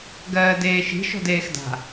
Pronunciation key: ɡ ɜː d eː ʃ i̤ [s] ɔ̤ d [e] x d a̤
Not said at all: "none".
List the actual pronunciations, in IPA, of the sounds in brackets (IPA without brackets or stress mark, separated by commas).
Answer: ʃ, eː